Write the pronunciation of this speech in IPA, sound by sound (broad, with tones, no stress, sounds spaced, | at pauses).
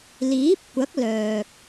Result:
l iː˨˥ p̚ kʷ ɐ˨˥ k̚ l œː˨ k̚